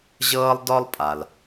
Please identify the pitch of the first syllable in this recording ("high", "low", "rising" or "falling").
high